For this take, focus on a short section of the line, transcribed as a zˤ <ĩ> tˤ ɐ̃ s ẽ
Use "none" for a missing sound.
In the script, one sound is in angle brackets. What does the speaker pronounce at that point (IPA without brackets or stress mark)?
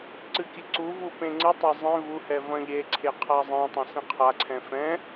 ẽ